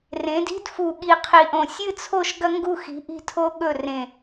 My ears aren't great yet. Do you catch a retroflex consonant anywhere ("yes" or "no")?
no